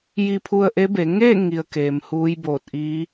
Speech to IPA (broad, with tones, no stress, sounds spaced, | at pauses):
j i˧ pʰ u˧ ə̯ ʔ e˧˥ b e˩˧ ŋ e˥˨ ŋ i˧ ə̯ k eː˩ m h uː˧˥ j b oː˧˩ t̚ ʔ iː˧˥